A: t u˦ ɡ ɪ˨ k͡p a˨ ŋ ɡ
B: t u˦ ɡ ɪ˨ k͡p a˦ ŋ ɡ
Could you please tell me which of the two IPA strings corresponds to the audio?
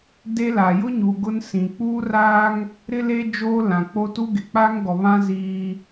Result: B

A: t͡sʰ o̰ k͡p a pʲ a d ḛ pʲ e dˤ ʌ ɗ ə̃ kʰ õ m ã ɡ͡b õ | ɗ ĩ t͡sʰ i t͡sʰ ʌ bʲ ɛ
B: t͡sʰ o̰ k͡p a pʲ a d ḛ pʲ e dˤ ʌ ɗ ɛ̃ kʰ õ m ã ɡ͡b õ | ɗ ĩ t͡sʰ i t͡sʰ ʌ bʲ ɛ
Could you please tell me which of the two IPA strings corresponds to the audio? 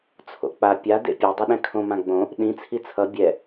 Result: B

